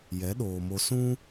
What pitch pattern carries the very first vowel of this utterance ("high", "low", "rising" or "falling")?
rising